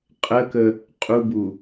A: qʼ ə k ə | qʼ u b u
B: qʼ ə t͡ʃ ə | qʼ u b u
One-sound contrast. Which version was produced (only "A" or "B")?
A